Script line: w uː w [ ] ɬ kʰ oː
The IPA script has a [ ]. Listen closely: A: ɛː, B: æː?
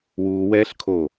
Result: A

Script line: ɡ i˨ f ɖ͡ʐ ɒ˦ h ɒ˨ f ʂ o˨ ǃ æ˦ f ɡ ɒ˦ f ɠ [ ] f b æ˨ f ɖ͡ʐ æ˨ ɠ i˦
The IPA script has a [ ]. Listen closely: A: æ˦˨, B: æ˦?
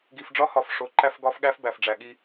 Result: B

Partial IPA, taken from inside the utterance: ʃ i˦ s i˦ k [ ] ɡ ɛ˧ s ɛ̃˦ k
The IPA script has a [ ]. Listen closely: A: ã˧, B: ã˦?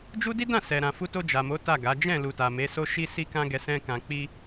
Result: B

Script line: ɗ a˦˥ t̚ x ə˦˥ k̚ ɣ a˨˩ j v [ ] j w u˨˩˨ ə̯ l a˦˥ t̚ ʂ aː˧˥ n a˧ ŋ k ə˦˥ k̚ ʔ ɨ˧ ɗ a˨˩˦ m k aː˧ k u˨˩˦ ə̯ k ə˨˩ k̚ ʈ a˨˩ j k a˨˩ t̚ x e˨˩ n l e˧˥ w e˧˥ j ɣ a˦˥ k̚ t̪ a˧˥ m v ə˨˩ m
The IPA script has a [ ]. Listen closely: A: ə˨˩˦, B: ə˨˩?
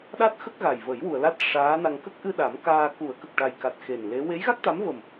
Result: A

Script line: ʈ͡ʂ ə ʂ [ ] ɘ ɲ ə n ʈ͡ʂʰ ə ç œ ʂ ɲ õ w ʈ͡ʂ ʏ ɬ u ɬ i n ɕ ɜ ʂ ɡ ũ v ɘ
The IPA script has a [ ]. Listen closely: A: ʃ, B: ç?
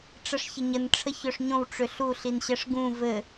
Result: B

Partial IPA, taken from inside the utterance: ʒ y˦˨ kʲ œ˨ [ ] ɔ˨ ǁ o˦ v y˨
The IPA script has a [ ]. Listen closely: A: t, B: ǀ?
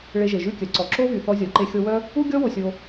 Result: B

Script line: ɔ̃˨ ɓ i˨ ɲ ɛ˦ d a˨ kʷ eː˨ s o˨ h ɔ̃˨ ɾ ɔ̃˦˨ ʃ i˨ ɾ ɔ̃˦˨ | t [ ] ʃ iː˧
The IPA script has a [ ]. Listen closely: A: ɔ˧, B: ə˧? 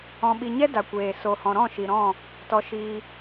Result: A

